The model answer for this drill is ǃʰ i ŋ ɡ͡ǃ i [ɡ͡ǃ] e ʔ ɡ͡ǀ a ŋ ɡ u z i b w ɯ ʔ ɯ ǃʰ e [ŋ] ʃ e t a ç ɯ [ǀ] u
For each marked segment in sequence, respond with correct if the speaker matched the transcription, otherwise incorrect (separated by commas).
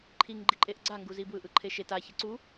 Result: incorrect, incorrect, correct